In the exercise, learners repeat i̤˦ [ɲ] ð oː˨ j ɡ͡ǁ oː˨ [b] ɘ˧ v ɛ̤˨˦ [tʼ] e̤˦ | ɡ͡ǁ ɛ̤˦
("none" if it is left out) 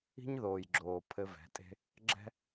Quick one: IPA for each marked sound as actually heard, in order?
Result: ɲ, pʰ, tʼ

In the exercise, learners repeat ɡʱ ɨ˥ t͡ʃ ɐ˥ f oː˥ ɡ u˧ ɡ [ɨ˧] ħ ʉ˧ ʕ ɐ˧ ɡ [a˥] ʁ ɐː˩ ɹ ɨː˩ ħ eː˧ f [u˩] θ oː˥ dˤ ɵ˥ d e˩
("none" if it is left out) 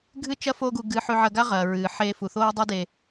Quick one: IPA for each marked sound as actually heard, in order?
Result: ɨ˧, a˥, u˩

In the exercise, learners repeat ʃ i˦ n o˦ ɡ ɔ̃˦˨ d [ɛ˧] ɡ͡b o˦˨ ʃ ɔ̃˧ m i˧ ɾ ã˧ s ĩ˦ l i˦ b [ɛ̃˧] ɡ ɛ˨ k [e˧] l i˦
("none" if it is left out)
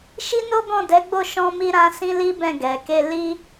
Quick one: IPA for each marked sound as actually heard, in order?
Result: ɛ˨˦, ɛ̃˦˨, e˧

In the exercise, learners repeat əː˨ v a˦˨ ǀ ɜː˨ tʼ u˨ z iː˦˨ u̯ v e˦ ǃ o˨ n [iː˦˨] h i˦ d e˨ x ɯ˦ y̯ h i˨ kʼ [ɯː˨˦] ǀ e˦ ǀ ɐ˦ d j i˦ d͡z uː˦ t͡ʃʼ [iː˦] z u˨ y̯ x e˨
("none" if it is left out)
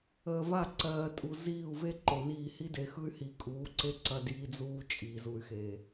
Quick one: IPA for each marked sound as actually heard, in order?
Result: iː˦˨, uː˨˦, iː˨

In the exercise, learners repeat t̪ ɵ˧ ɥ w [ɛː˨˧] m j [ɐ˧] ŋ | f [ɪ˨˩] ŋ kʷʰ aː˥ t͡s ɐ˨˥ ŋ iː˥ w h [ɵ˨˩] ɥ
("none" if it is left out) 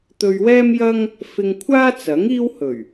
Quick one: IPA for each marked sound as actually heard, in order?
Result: ɛː˥, ɐ˥, ɪ˧, ɵ˨˩

